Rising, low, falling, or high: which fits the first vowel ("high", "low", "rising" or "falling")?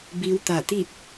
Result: rising